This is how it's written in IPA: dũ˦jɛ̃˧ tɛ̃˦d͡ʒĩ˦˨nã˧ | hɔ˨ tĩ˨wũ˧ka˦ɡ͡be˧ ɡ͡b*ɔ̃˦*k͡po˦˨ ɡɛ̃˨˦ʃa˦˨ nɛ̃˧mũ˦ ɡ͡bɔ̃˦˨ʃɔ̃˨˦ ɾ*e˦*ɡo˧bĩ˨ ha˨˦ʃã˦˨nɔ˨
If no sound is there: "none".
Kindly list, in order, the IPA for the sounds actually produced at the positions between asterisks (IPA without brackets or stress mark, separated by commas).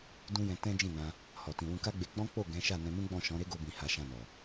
ɔ̃˦, e˦